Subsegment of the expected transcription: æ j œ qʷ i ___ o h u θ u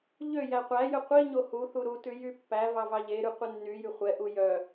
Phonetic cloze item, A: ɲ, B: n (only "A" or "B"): A